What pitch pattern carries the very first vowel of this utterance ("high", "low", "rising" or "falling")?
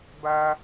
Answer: high